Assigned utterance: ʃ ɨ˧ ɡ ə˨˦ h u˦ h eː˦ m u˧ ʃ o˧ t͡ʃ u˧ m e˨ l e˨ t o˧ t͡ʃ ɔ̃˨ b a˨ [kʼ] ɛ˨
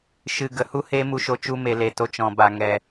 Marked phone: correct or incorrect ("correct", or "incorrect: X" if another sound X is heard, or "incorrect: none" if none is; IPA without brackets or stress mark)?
incorrect: ŋ